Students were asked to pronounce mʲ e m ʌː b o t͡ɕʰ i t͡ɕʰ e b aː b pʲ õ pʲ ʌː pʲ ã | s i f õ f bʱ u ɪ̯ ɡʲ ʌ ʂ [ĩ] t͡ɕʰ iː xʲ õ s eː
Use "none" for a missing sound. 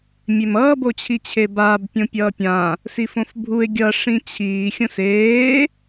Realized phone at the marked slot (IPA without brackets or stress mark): ĩ